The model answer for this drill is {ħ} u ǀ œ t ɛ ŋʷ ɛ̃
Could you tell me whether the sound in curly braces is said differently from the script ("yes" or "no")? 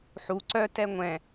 no